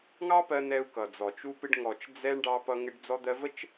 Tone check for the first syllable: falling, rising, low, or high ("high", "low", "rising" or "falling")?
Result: high